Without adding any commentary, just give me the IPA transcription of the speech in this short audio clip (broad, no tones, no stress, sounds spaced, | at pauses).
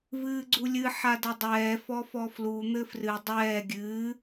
v ɨː ɡ͡ǀ u lʲ ɨ ħ a d ɐ dˤ ɛː f ɔ f ɔ f l u n̪ ɘ f r ɨ dˤ ɛː ɡʲ ɨː